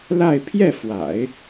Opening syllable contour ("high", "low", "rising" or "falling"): falling